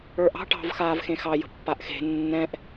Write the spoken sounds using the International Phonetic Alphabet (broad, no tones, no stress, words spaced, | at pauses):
ə˞ʔɑ̤ ʈɑ̤vxaːv xẽxɑ jə̤pːaʔxe̤ nːɛ̃ʔ